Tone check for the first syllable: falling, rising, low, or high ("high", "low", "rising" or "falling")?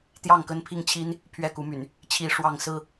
falling